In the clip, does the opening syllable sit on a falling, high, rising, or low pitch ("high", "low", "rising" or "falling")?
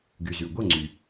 low